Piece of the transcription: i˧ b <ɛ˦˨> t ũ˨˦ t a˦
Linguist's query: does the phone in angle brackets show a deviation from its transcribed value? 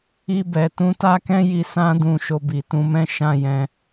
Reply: yes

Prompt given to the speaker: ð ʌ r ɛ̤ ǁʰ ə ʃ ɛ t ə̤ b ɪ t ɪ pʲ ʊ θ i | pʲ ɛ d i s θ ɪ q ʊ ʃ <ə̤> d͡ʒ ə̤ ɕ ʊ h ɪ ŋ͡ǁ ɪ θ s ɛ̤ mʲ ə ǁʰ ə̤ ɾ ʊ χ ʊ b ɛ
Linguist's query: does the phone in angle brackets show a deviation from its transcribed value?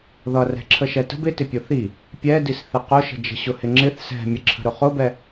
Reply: no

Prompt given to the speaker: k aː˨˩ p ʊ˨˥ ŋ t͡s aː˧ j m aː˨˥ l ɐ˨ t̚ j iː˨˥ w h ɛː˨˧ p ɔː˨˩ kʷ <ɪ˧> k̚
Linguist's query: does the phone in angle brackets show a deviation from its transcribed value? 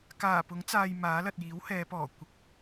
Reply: no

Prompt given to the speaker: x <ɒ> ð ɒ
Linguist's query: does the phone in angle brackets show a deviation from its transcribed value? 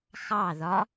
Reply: yes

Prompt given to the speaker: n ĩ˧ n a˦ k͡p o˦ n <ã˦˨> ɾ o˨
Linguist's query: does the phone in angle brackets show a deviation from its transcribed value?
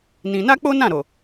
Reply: no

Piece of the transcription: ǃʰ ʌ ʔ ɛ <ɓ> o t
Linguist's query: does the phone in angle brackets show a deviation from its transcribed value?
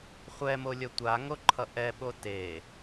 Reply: no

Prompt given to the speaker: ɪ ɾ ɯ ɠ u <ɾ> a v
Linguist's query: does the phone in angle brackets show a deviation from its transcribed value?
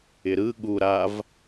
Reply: no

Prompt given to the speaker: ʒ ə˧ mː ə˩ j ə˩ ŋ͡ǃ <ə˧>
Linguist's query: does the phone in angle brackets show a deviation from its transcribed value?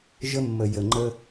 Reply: no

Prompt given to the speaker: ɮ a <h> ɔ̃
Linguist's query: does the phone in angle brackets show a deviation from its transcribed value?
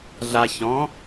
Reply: yes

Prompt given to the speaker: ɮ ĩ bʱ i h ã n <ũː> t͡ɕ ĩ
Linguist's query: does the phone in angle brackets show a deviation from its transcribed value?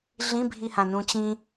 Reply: yes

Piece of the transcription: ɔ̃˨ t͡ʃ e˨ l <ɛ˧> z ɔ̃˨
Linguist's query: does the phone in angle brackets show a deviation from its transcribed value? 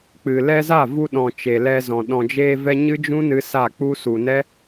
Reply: no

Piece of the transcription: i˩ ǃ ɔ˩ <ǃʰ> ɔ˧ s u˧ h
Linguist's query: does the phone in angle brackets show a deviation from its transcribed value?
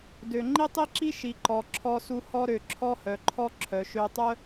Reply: yes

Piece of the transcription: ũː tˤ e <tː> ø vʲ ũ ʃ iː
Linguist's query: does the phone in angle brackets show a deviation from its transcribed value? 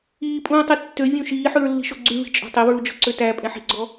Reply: no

